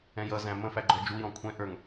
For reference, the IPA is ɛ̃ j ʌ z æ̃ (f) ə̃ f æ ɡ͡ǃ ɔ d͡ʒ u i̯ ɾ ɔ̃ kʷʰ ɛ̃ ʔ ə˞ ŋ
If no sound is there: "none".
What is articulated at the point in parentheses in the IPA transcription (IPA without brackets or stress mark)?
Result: m